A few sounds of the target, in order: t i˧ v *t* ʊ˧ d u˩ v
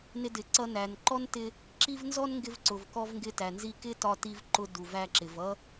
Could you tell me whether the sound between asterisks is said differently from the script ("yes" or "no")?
yes